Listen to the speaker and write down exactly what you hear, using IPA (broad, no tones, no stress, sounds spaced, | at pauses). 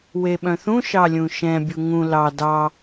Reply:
w e ɓ œ̃ θ ũ ʃ ɑ lʲ ũ ʃ ɛ̃ bʲ u ŋ ũ l ɑ d ɑ